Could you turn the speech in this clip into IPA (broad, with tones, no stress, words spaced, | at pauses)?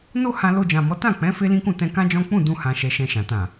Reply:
no˦ hã˧lo˧d͡ʒã˨mɔ˨˦ tã˦˨k͡pɛ̃˨˦ fe˦lĩ˦kũ˦˨ tɛ̃˧kã˦d͡ʒɔ̃˦ k͡pũ˦˨dũ˧hã˨ ʃɛ˧ʃɛ̃˧ʃã˨ tã˨